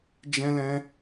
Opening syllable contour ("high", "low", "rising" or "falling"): high